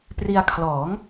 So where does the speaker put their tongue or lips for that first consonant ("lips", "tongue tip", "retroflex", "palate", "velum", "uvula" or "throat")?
lips